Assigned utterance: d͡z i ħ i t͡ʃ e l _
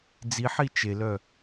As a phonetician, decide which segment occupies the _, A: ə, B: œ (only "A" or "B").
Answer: B